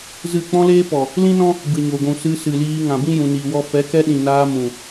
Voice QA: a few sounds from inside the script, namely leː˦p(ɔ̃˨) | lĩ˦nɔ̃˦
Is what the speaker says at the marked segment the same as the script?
no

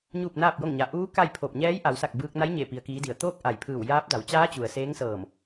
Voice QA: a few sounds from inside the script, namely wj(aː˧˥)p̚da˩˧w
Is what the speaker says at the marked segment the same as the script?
yes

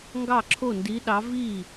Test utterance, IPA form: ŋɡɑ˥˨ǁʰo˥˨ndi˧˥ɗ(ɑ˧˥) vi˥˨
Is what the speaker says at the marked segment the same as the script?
yes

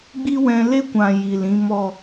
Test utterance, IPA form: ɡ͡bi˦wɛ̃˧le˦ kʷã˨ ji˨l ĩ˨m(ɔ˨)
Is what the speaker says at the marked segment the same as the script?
yes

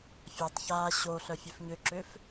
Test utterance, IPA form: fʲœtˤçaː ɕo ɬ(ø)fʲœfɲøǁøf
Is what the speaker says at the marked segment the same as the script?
no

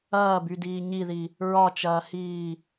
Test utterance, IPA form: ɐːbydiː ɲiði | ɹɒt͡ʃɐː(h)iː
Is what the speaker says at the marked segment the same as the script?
yes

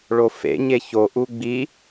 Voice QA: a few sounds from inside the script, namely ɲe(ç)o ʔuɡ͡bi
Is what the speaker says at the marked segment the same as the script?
yes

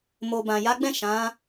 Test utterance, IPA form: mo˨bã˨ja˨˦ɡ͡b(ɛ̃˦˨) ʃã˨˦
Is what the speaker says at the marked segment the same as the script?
yes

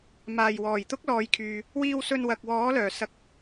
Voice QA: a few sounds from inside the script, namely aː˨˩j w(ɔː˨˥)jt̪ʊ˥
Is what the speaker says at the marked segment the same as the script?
no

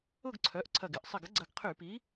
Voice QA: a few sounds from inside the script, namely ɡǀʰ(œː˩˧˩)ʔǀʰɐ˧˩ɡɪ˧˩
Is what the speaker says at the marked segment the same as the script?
no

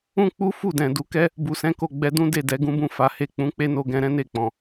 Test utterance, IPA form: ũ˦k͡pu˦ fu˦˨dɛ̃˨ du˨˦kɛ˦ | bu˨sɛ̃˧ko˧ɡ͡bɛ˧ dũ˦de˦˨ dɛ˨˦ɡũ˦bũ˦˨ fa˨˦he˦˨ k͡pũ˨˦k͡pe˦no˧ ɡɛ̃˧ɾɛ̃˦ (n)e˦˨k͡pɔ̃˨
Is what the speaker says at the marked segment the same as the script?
yes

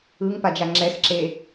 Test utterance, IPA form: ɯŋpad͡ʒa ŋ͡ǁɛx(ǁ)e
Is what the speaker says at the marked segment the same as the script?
yes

